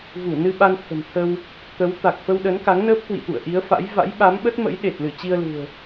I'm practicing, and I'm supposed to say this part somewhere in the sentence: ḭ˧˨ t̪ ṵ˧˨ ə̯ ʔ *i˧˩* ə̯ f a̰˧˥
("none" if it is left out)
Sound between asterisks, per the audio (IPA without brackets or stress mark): i˨˦